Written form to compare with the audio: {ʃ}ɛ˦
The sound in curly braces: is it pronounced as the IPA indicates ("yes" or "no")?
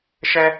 yes